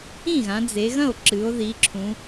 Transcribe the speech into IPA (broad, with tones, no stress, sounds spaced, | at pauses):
ĩ˥˩ ɣ ã˩˧ d͡z e˩˧ ɣ ɐ̃˥˩ o̯ ǁ ɨ˩˧ o̯ ð i˩˧ ǁʰ ũ˩˧